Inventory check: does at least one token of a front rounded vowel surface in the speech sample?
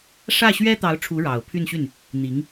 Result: yes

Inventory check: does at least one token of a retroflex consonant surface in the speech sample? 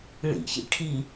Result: yes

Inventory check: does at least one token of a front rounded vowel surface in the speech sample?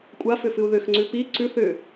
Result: yes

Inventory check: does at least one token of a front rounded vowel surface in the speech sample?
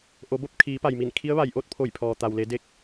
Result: no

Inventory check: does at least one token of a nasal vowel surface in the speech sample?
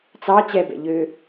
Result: no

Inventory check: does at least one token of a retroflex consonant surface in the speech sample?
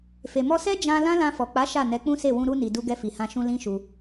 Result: no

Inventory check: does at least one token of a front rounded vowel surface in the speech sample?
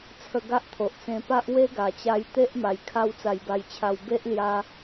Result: no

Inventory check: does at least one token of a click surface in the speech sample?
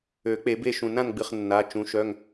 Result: no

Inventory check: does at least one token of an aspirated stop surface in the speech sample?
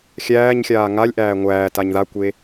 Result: no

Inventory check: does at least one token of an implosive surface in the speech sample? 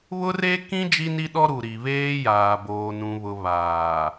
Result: yes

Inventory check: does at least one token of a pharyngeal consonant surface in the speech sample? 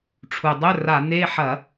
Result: yes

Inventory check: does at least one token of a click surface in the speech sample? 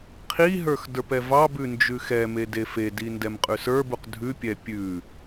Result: no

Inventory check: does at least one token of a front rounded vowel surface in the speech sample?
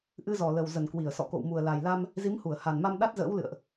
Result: no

